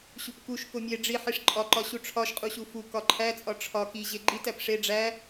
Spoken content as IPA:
ɕ u p k u ʃ k o mʲ e ɖ͡ʐ i ħ i ʂ ǃʼ ɒ ǃ ɒ ɕ u ʈ͡ʂʰ ɒ ʃ qʼ u ɕ u f u k ɒ ǃʰ æ t͡sʼ ɒ ʈ͡ʂʰ ɒ k i ʑ e ɡ͡ǃ i t æ p ʂ e ɖ͡ʐ æ

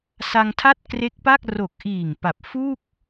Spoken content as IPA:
s a˧ ŋ tʰ a˥˩ t̚ k r e˦˥ k̚ p a˥˩ k̚ r o˨˩ k̚ ʔ iː˨˩ ŋ p a˨˩ p̚ f u˥˩ k̚

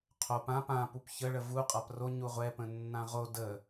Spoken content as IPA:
qʰ o p ã p ã p u p ç ə ɭ ə v u qʼ a p r o ɲ u ʁʷ ɛ p ə̃ nː ã ʁ o d ə

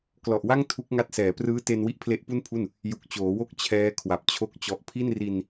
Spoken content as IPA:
k l ɔ˨˩ ʔ w a˥˩ ŋ tʰ u˦˥ k̚ ŋ a˦˥ t̚ s ɛː˩˦ p r ɯː˦˥ t e˧ n w i˦˥ ʔ pʰ l e˦˥ ʔ p u˥˩ n pʰ u˥˩ n | j u˨˩ k̚ t͡ɕ oː˩˦ w o˥˩ k̚ t͡ɕʰ ɛː˦˥ kʰ w a˨˩ p̚ t͡ɕʰ o˦˥ k̚ t͡ɕ ɔ˨˩ ʔ pʰ i˥˩ n r i˧ n

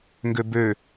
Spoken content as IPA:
ŋ ɡ ø b ø

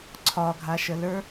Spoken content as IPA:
ǀʰ ɒ ɡʱ a ʃ ə l ə˞

